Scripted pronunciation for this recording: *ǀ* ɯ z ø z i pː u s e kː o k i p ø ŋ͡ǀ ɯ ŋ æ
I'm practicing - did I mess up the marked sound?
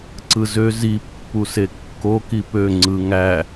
no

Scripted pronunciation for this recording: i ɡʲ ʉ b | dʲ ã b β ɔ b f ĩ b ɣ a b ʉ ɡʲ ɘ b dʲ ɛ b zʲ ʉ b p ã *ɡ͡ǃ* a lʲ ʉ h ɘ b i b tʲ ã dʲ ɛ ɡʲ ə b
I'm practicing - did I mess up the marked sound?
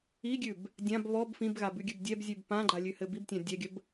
no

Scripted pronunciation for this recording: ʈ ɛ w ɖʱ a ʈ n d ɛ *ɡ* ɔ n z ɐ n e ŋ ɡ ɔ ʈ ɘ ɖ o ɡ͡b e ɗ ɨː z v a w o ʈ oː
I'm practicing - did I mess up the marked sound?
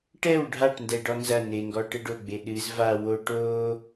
yes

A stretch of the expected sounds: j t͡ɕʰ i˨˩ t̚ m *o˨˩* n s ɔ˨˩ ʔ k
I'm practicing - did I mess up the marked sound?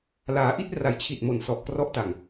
no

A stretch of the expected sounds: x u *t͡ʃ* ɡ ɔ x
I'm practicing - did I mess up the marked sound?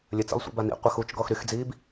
no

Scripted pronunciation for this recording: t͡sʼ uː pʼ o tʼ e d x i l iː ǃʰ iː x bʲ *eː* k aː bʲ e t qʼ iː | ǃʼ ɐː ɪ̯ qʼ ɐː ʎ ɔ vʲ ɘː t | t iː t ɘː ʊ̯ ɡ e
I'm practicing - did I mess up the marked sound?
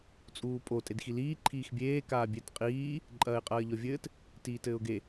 no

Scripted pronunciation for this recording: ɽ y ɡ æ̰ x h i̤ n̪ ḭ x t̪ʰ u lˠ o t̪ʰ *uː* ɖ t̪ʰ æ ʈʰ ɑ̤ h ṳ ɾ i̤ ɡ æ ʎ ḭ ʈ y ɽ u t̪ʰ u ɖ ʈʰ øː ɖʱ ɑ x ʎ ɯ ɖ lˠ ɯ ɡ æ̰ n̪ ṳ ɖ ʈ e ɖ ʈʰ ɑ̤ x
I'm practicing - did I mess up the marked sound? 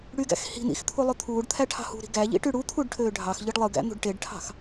no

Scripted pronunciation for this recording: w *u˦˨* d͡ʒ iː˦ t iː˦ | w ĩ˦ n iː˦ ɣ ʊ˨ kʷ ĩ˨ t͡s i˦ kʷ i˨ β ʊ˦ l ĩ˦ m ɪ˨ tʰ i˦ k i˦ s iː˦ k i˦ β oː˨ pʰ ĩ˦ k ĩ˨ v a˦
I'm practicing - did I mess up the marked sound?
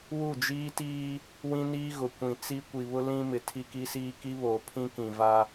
no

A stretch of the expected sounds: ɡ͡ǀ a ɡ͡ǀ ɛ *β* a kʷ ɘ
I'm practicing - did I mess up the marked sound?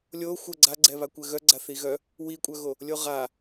no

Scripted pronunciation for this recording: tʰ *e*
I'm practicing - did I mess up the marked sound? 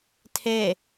no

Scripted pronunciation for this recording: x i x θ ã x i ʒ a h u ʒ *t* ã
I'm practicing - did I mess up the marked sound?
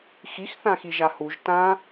no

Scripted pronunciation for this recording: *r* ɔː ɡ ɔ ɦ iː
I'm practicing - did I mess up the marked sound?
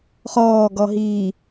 yes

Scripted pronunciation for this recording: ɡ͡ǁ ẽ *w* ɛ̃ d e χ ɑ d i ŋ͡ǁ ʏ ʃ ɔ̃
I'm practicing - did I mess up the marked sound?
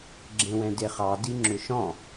no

